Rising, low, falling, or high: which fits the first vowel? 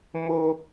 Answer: high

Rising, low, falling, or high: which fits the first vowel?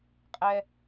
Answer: high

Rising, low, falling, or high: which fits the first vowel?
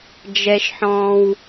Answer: low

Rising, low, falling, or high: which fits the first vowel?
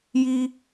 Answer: high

